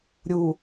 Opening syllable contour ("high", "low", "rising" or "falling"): low